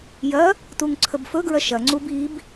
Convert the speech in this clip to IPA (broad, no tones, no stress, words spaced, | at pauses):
jɐ | tuŋǀʰəbfɵɡɹɐ ʃɐŋ͡ǀub ib